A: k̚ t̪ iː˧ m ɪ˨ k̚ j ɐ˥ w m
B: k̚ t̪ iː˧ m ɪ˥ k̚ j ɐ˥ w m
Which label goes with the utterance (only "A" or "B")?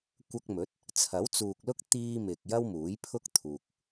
A